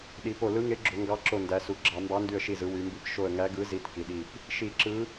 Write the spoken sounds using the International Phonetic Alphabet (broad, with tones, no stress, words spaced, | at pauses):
ɗi˩˧po˧˩ lɯ˨˥ŋe˨˥ɡ͡ǁo˩˧ ŋɡɑ˨˥ǁo˧˩ ndæ˩˧su˩˧ɡ͡ǁɑ˧˩˧ mbɑ˨˥ndy˧˩ə̯ʃi˧˩zɯ˩˧ wy˩˧mbi˧˩p ʃo˧˩ə̯ŋæ˨˥ɡɯ˨˥ zi˨˥tki˩˧ɗi˧˩p | ʃi˧˩˧ǁɯ˨˥